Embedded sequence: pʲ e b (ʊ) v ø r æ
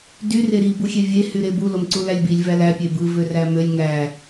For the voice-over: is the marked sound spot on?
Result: no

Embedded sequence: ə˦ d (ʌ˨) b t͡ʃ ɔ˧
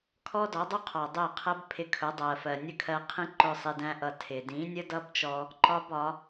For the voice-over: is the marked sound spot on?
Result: no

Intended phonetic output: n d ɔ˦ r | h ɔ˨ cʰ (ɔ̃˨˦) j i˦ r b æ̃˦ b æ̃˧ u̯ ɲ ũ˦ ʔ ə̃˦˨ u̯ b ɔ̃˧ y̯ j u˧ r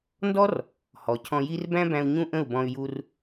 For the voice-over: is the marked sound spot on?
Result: no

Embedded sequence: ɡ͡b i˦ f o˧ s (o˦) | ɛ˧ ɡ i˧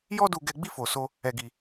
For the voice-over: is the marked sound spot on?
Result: yes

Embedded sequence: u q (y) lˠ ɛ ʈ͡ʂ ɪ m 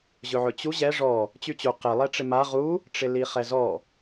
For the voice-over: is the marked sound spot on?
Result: no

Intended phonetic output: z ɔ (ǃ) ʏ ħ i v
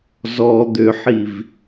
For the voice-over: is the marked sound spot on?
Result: no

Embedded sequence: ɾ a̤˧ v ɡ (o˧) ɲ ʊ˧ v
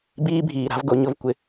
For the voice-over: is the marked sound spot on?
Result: no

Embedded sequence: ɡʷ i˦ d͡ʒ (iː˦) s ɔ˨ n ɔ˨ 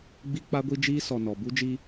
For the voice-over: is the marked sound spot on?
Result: yes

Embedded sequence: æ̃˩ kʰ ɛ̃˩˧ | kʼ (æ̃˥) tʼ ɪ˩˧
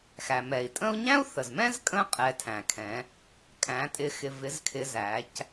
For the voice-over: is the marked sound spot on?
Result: no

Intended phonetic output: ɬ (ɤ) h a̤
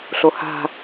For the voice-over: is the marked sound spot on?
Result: no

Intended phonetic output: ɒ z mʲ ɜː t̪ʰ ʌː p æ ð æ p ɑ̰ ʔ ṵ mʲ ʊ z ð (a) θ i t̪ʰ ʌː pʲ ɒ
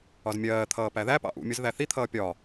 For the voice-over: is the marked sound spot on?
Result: no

